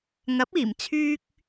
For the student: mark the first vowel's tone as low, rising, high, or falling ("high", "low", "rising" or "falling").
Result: rising